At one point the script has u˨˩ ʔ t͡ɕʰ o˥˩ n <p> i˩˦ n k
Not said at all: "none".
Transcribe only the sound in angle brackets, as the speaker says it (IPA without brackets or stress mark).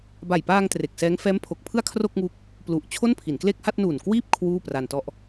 pʰ